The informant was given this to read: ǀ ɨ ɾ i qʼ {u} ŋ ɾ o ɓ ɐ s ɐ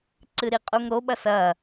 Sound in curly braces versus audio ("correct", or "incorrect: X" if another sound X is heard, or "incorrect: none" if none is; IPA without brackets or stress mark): correct